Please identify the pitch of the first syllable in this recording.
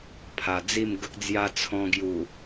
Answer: low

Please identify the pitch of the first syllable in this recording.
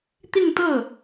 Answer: falling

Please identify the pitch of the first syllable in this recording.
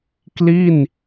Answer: falling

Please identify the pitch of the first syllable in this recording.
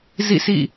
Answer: falling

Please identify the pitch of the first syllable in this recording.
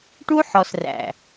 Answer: high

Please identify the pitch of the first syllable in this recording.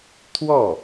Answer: falling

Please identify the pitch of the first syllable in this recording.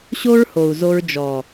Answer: high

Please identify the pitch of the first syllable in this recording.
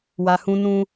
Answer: low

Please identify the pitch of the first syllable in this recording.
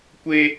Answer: high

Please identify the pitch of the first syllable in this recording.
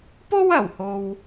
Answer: high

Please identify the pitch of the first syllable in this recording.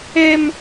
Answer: high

